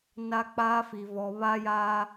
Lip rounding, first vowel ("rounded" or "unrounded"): unrounded